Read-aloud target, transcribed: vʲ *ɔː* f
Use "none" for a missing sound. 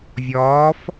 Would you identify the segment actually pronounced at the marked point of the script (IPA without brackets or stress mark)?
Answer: ɔː